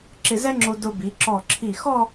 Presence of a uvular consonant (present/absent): absent